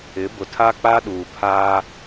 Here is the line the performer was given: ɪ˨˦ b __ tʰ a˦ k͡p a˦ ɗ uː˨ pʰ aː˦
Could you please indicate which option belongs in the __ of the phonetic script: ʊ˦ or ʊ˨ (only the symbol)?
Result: ʊ˨